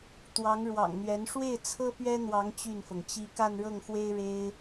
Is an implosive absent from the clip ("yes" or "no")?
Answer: yes